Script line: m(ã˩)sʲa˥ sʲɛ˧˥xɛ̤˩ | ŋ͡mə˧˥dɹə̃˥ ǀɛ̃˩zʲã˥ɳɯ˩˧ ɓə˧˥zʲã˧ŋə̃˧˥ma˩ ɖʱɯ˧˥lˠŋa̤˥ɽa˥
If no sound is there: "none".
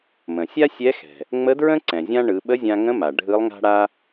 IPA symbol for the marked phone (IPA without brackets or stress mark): ə̃˩